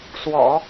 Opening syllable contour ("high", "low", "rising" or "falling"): low